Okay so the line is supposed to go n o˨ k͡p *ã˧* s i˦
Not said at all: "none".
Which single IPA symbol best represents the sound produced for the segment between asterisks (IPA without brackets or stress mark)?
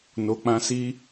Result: ã˧